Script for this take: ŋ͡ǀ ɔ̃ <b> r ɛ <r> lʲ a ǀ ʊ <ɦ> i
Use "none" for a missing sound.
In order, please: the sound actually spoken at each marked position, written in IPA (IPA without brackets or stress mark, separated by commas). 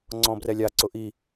b, none, ʔ